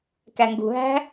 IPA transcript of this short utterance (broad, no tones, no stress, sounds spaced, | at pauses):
k æ ŋ ɡ ṳ ɦ æ̤